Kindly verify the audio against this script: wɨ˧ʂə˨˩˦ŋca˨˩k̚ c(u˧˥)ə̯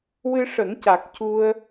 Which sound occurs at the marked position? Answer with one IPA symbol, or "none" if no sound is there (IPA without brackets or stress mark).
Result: u˧